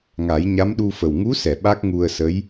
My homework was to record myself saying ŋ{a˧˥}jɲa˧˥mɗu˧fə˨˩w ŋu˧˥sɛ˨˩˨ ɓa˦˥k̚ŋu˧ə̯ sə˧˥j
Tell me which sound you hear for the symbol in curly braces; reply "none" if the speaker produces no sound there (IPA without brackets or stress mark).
a˨˩˦